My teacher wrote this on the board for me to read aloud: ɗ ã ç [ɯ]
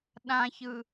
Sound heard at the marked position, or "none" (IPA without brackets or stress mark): ɯ